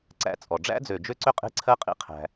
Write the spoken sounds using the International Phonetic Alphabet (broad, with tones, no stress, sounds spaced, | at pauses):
ǀ æ̰˦ t͡sʼ ɔ˨ ɖ͡ʐ æ̰˦ d͡z ø˨ d͡ʒ ø˦ ǀ ø˦ qʼ e̤˦ ǀʰ ɜ˦ qʼ ḭ˦˨ qʰ æ̤˦